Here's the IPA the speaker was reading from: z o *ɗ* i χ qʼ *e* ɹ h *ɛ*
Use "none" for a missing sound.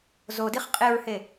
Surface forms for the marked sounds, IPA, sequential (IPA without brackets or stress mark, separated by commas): d, e, e